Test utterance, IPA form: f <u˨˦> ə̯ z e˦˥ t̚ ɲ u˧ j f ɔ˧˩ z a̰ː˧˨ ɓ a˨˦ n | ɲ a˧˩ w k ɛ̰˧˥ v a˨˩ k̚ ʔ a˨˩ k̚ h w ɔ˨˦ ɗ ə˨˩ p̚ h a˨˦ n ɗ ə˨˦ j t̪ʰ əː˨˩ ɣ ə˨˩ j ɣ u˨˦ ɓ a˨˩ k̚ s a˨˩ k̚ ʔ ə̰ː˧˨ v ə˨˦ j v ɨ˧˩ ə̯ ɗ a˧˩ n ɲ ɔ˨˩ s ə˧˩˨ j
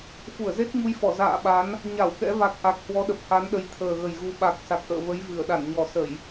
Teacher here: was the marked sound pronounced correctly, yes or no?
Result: no